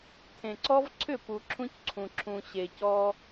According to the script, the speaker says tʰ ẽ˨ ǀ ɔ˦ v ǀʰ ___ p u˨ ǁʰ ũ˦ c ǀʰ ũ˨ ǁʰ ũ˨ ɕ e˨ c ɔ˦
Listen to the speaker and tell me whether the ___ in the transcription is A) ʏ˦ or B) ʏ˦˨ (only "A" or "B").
B